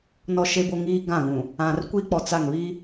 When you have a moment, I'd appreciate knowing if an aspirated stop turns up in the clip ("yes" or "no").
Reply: no